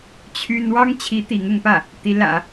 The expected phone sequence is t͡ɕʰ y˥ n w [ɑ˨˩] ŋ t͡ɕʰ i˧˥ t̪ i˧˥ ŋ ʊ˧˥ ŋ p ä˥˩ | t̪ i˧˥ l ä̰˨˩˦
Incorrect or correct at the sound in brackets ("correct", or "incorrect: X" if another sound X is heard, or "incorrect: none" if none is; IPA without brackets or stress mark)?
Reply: incorrect: ɑ˥